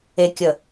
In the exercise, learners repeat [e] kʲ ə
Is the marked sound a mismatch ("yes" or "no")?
no